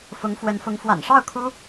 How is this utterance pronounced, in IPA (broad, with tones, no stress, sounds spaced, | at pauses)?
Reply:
f ʊ˧˥ ŋ f w ə˧˥ n f ʊ˧˥ ŋ f w a̰˨˩ n ʂ ɑ˥˩ ʊ̯ kʰ u˥